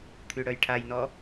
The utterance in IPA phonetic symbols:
t̪ʰyɽœjʈʰajnɔ

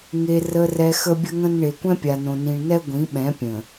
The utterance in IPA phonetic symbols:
ŋe˨ rə˨rɛ˨ xə˦bʲə˦ŋə̃˦n ɳe˨kʷɛ̃˦pʲa˨nõ˨ nĩ˨ɳnɛ˦ ɡʷĩ˨˦ɓɛ̃˨˦pʲə̃˨

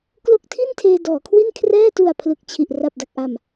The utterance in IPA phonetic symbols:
klo˦˥k̚tʰi˥˩n tʰeː˧dɔː˩˦kʰwi˥˩n kʰrɛː˥˩tu˨˩a̯ pʰlɯ˨˩k̚t͡ɕʰi˨˩ʔ ra˨˩p̚da˨˩k̚ʔa˨˩m

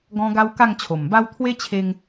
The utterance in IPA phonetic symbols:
ɡɔ̃˧ ɡa˦wka˥˧ŋt͡ɕʰo˨˩mba˦w t̪ʰwe˦t͡ɕʰe˧ŋ

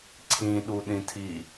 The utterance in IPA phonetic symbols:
ǀʰĩɗuɗĩtʰi

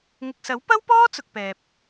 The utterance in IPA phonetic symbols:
ŋɪ˨k̚sɐ˨˥wpɐ˥wpɔː˥ t͡sʊ˨k̚pɛː˨p̚

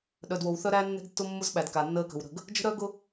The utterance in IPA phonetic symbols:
ɗœ˨dwo˨w θœ˦ɾæː˦ nːɛ̤˦ɡtːʊ˦ mːʊ˦z ɓæ˨dka˨nːəː˦ kə̤˨w ɾə̤˦˨ɡ | d͡ʒə̤˦ɾœː˦ ɡʊ˦

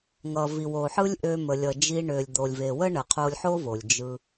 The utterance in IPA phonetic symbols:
ŋʌ˨ vi˨wo˨ħɯ˦lʲ ʔø˧mə˨lʲʌ˨d͡ʒi˧ ɳø˨lʲd̪o˨lʲve˨ wə˦ɳə˨qʰo˧lʲħo˦ vo˨lʲd͡ʒɯ˧

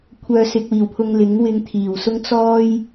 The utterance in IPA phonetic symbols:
kʷʰœː˧sɪ˧k̚wiː˨˩wpʰʊ˧ŋ lɪ˨˥ŋwɪ˧ŋ t̪ʰiː˨˩wsʊ˥ŋ t͡sɔː˥j

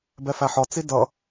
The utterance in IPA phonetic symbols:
bɛfæħɒ t͡sidʌ

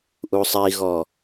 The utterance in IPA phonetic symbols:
ʔusˤiɣɔ

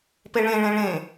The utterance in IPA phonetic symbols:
peɭẽɭẽ ɭẽ

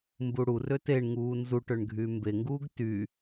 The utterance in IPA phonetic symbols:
mbuɽurø teɳŋuː nzu ʈøɳɡʱyːmbeŋɡuːɡ ty

